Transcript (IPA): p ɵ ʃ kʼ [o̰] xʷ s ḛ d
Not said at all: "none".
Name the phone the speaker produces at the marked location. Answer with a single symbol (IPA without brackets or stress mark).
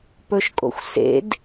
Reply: o̰